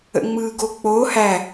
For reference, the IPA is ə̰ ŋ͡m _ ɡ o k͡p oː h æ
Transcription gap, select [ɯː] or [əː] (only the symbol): ɯː